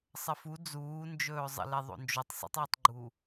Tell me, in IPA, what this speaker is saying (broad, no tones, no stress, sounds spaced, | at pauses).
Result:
sˤ ə f u d͡z uː n d͡ʒ ɵː zˤ ə̰ l e ðˤ o̰ n d͡ʒ o tˤ sˤ ə̰ tˤ ɵː tˤ ɡ͡ǃ u